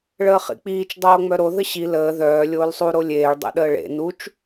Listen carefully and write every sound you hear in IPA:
ɭ əː χ ḭ k͡p iː t͡ʃ dˤ oː ŋ͡m œ ɾ o ð ə ɕ i l əː ð œː lʲ oː l sˤ u ɾ o lʲ eː ɭ dˤ ḛ ɗ əː ɭ ḛ n u t͡ʃ

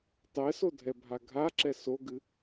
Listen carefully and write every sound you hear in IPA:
tˤ ɛ s o dʱ ɛ bʱ a ɡʱ a ǁ ɛ s o ɡ ɨ

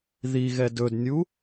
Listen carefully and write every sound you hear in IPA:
ð i ɣ ɛ d ɵ d nʲ u

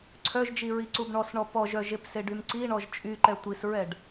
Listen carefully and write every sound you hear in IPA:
ǀʰ œ ʒ d͡ʒ i ɹ i ǀ u b ɳ ɔ s ɳ ɔ p ɔ ʒ œ ʒ e p s e ɖ y m ǀ i ɳ ɔ ʒ t͡ʃʼ y ǃ ɛ tʷ i s ɹ ɛ ɖ

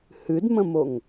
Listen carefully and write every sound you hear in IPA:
h ɨ d m ə̃ m o ŋ

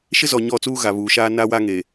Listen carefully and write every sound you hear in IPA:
ʃ ɪ˦ z ɔ˨ ɲ ɔ˦˨ t͡s uː˦ ɣ a˨ β uː˨ ʃ aː˦ n a˦ w a˦ ŋ e˨

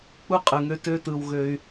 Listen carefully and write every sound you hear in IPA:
k͡p u˥ qʼ ɯ˩ ŋ ø˧ t ø˧ t ɯ˩ w ɣ ø˩ y̯

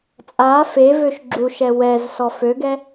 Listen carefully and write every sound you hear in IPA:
t͡sʼ a f e v ø ʃ ɡ͡ǁ u ʃ ɛ w ɛ z s ɔ f ø ɡ ɛ

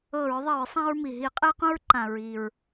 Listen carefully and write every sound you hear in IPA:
ɤ˧˩˧ ɹ ðˤ i˧˩˧ ɹ sˤ ã˧ ɹ m i˩ ɦ i˧˩˧ qʼ e˧ q ũ˧ ɹ ǃ ã˩ ɹ i˩ ɹ

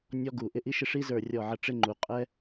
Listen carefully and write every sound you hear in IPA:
nʲ ɔ˦ ɡ u˧˩ ʔ ɪ˦ ʔ i˦ ʃ ɪ˦ ʂ i˦ z ə˞˧˩ rʲ ɔ˧˩ ʕ ə˧˩ ʈ͡ʂ ɪ˦ ŋ͡ǃ u˧˩ qʼ ɛ˦

